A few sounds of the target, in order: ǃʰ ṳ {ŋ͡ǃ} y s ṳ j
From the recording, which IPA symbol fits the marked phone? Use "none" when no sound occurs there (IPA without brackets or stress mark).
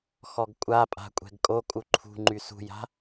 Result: ŋ͡ǃ